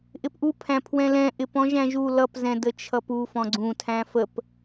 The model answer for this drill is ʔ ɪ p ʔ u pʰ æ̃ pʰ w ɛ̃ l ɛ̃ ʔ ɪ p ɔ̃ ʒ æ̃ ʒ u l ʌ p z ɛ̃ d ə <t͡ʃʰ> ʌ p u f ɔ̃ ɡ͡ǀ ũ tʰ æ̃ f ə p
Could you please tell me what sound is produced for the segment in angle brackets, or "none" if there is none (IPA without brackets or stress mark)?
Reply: t͡ʃʰ